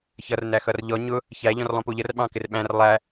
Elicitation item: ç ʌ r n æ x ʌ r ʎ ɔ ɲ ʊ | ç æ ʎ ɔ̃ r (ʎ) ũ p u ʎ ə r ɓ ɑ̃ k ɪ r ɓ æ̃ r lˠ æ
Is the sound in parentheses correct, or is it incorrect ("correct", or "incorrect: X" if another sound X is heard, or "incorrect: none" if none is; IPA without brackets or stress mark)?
incorrect: lˠ